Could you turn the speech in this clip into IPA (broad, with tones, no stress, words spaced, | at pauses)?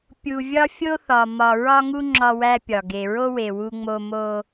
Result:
pʲu˨ vʲɒ˦fʲo˦θɒ˨ mɒ˨ɹɒ˦ŋu˦ ŋ͡ǁɒ˦wæ˦pʲɒ˨ ɡe˨ɹo˦we˨ wu˦ŋ͡mo˦ mo˦